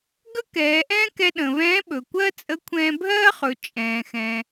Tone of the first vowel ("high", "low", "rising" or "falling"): high